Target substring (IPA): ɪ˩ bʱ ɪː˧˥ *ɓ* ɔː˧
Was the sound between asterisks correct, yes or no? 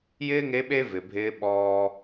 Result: yes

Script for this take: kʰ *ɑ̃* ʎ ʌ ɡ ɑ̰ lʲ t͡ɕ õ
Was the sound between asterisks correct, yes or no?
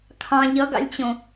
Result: yes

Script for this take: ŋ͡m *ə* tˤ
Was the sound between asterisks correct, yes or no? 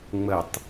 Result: yes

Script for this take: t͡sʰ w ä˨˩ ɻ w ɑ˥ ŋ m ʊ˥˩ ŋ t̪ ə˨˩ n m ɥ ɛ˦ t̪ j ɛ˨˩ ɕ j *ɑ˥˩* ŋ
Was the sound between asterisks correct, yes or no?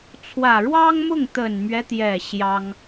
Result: no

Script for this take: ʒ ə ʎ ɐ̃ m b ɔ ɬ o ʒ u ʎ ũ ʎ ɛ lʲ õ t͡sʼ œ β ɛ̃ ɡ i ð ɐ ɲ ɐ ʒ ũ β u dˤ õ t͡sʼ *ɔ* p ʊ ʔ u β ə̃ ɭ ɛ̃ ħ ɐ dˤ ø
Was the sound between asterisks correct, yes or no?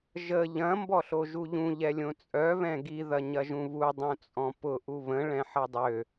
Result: no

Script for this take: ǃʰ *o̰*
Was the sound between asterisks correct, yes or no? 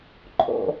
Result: yes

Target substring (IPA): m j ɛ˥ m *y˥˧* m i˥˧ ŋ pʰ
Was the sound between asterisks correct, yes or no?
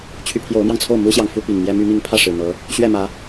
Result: no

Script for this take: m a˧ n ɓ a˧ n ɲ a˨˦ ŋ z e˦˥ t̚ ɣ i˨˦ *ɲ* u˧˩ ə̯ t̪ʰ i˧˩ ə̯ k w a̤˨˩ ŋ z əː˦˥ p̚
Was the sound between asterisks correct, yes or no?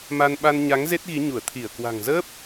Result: yes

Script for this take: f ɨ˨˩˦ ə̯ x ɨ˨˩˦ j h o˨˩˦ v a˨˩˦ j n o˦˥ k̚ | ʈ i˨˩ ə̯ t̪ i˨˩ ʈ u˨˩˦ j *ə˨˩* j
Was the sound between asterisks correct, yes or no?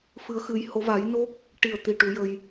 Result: no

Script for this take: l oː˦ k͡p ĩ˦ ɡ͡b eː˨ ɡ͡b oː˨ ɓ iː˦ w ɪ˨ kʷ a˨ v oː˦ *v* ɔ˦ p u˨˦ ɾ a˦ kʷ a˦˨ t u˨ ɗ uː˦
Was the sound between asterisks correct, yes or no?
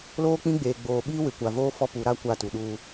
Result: no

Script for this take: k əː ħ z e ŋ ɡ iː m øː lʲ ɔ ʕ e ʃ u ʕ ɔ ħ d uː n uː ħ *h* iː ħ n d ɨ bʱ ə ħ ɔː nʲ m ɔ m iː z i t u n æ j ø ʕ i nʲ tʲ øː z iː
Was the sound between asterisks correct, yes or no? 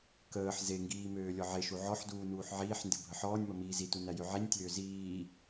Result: no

